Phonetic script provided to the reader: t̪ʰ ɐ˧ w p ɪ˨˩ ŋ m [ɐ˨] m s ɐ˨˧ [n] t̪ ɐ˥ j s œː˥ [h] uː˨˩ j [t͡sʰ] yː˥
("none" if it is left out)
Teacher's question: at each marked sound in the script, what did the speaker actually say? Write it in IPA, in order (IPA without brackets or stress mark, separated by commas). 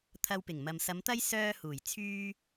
ɐ˨, m, h, t͡sʰ